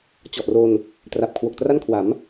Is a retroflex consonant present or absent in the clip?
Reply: absent